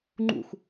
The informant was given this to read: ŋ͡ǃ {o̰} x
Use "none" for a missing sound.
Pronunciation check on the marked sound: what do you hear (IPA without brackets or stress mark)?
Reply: ṵ